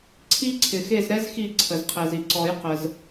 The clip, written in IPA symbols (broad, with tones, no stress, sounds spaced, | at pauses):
ǀʰ i˥ ǀʰ ɪ˩ x e˦˨ z ɾ ɛ˥ z x i˦˨ ǀʰ ə˩ z qʰ ɛ˩ z i˩ ǀ ɔ˨˩˦ j q ə˩ z